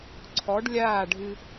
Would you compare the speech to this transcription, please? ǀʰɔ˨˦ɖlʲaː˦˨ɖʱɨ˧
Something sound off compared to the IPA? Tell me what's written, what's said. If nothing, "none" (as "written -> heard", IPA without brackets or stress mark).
none